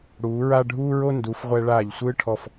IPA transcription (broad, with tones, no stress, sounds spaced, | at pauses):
ɽ uː˩˧ ɹ a˥˧ ɖʱ uː˥ ɹ o˥ n d u˩˧ f ʁʷ ɛ˧ ɭ aː˧˩ ʎ sʷ ɯː˥ ʈʰ ɔ˧˩ f